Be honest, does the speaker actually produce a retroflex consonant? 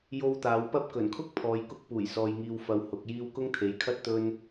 no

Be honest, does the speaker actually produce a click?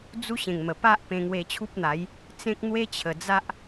no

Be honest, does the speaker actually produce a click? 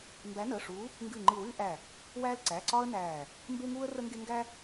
yes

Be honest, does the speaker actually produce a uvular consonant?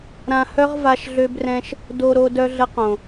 yes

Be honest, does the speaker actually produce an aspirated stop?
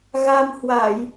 no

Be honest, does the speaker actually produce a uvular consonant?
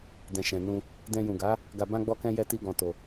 no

